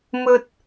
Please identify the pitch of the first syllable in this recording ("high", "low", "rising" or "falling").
high